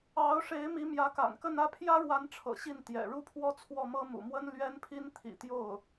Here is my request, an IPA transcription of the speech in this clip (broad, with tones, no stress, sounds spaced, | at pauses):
ɑ˧˥ ʊ̯ ʂ e˧˥ ɪ̯ m i˧˥ m j ä˧˥ k a̰˨˩ n k ə˥˧ n ä˥˩ pʰ j ä˥ ɻ w a˧˥ n ʈ͡ʂʰ ɤ̰˨˩ ɕ i˥˩ n t̪ j ɛ̰˨˩ ɻ u˥˧ pʰ w ɔ˥˧ t͡sʰ w ɔ˥˩ m ɤ˥ m ṵ˨˩ m w ə˥ n l ɥ ɛ˥ n pʰ i˥ n t̪ʰ ḭ˨˩ t̪ j o˥˩ ʊ̯